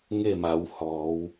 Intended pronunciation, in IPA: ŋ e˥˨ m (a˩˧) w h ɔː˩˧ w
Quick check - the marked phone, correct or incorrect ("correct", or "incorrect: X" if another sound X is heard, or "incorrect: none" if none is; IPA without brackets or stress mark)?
correct